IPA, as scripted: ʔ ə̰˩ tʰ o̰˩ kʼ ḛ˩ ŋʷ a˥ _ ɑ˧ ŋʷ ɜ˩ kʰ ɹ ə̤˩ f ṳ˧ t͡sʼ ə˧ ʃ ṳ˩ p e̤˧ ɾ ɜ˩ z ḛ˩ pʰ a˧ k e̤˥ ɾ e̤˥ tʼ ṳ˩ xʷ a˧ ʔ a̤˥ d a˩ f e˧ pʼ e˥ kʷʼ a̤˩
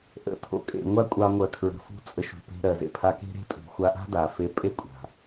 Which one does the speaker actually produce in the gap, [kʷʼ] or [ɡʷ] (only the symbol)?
kʷʼ